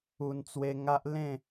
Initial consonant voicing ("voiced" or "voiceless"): voiced